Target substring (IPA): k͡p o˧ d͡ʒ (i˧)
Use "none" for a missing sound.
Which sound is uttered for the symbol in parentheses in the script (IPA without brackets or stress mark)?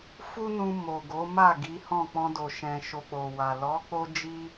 i˧